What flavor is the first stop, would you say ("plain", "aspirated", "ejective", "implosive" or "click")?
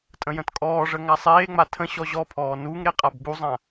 ejective